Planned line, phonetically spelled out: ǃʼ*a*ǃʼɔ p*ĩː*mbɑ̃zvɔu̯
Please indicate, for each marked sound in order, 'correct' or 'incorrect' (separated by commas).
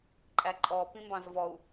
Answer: incorrect, incorrect